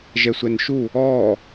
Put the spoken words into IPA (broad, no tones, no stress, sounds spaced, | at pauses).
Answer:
ʒ ɛ sʷ ɛ n ʃ u | ɔː